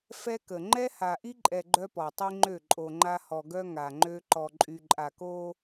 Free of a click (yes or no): no